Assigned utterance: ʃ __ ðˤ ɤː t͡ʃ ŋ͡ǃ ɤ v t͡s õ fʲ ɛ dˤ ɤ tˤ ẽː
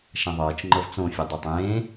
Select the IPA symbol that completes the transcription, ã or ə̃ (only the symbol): ã